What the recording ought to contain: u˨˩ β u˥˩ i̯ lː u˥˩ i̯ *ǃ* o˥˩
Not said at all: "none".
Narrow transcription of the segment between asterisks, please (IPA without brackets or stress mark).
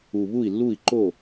ǃ